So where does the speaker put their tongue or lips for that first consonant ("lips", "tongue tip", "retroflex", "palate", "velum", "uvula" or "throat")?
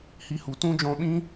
throat